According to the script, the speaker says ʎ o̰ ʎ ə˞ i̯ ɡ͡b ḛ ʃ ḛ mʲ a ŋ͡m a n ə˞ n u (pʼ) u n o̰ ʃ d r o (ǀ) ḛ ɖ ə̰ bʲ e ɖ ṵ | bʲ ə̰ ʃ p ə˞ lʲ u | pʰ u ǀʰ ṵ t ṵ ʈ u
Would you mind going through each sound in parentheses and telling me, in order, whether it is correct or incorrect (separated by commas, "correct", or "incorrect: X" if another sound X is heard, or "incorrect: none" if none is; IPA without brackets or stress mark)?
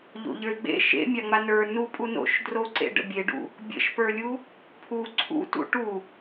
correct, correct